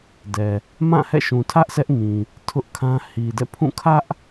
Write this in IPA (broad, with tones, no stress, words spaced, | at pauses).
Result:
dɛ˨ | mã˦˨hɛ̰˦˨ʃũ˨ tʰä˦ʔ sʰɛ˦ʔŋĩ˨ | tʰʊ˦ʔkʰã˦ hi˨dɛ̰˦˨pʰũ˦˨ kʰä˦ʔ